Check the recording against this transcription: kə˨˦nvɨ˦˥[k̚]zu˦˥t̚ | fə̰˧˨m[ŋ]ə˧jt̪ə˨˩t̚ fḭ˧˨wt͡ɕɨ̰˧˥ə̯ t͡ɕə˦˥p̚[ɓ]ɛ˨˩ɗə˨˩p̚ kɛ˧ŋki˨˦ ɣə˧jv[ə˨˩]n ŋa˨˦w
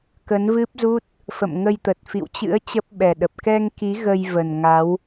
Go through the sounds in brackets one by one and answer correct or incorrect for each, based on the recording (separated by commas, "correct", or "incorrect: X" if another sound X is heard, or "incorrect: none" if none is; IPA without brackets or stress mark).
incorrect: p̚, correct, correct, correct